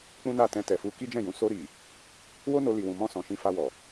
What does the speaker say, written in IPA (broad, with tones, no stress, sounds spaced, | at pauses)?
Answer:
k͡p ũ˦ n a˦˨ t ɛ̃˧ t ɛ˨ f u˧ k i˦ d͡ʒ ɛ̃˦˨ j ũ˨˦ s o˧ ɾ i˨ | w o˦ n o˧ l i˨ w ũ˨ m ɔ̃˧ s ɔ̃˨ ʃ ĩ˧ f a˧ w ɔ˨